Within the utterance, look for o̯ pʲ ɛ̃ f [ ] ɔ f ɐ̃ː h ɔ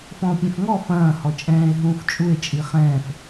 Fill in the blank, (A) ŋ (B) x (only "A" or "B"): A